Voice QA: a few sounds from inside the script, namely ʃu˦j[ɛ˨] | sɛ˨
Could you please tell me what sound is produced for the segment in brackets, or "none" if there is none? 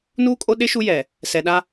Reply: ɛ˨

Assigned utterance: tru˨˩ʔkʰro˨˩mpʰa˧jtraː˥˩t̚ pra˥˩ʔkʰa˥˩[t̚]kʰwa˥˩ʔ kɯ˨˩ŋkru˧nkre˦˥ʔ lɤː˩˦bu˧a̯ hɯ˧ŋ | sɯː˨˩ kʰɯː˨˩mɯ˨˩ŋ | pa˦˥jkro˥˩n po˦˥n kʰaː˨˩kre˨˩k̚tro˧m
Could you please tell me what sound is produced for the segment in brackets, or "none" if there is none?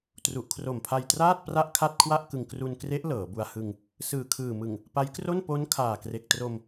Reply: t̚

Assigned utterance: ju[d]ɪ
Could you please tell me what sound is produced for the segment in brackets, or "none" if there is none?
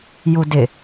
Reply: d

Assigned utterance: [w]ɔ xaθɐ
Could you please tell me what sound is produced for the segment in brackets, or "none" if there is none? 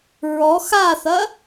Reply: ɹ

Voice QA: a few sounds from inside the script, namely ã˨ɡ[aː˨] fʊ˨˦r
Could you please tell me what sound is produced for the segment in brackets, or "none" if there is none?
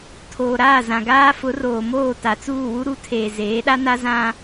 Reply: aː˦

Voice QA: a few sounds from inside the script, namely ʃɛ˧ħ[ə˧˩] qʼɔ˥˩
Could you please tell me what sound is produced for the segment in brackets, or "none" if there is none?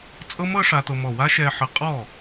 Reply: ə˧˩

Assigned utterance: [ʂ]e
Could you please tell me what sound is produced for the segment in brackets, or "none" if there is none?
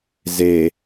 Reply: z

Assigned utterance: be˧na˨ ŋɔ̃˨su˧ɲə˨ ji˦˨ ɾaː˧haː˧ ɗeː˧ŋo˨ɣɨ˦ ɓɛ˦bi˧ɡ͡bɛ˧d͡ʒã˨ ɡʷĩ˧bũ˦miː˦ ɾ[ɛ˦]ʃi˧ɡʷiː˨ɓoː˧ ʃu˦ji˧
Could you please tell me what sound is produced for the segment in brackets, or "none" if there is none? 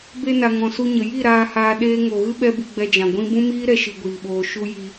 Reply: ɛ˦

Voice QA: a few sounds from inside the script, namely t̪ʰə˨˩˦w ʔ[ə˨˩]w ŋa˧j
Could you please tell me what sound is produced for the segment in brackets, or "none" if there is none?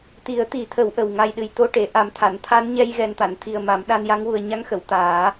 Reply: ə˨˩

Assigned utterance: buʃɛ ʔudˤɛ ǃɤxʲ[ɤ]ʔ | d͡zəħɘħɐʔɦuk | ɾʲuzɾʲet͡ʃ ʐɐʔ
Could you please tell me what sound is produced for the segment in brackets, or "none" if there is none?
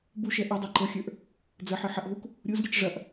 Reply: ə˞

